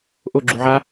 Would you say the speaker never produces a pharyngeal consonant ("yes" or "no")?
no